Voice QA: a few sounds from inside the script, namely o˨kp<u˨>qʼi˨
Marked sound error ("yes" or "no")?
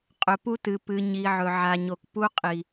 yes